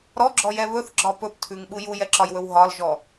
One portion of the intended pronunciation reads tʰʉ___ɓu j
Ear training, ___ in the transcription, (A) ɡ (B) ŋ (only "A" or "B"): B